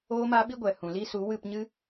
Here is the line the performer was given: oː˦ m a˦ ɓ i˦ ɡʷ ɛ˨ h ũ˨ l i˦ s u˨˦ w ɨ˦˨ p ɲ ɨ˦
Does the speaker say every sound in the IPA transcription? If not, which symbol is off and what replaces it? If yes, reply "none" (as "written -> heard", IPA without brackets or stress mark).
none